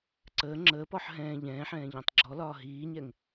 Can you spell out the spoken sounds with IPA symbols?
ǀəː ŋ͡ǁəːpɔħ ɦɛ̃ː ʎɛ̃ːħɛ̃ː ʎɔ̃tˤɡ͡ǁɔlɒː ɦiːɲɛŋ

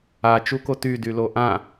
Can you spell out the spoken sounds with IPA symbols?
a t͡ʃukoty dyloʔã

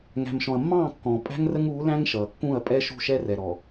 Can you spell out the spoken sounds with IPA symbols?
ŋæ̤˨mʃɔ̃˨ɐ̯mːɑ̃ː˦˨ kːɔ̃˨ pʼæ̤˦ŋrə˦ŋuː˨˦læ̃˦ŋ ʃʌː˨kːũ˦˨ɐ̯pʼɛ˦ ʃṳ˦˨ʃɛ˦rɛ˨ɾɔ˨

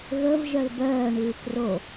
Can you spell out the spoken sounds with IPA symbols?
ɣəv ʒœlbœː ɳʉːkro

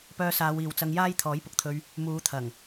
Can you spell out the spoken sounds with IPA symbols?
pœː˧saː˨˧wiː˨wt͡sɐ˧ŋ jaː˥j t̪ʰɔː˨˥jpʊ˨k̚t̪ʰɵ˧ɥ | muː˨˧t̪ʰɐ˨˩ŋ

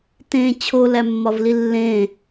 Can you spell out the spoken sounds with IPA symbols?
tẽ t͡ɕʰolæmːɒvli lːẽ

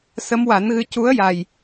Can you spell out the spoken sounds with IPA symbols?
sə˧˥mwa˨˩˦nɣɨ˧ cu˧˥ə̯ja˨˩j

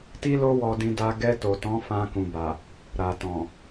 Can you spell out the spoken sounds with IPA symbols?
ti˦lo˦ wɔ˧dĩ˧da˧ ɡɛ˧ to˨tɔ̃˨˦ fã˧kũ˨ba˨ | ɾa˨tɔ̃˨

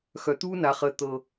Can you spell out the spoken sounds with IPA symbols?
xœ˨t̪uː˦na˨χəː˨ t̪ɤ˨

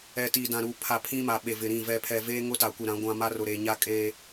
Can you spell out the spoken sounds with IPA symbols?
ɛ˨ tiː˨dã˨ɾu˨pʰa˨ pʰĩ˦ma˨ ɓe˨vɪ˨ɾĩ˦˨ vɛ˨pʰɛ˨ veː˦ŋʊ˦ ta˨kʷi˨ɾã˨˦ɡʷã˦ ma˦rʊ˨ɾeː˨ ɲa˦kʼeː˦

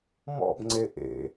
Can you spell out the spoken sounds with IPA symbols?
mɔ̰bŋ͡ǀe ʔḛ

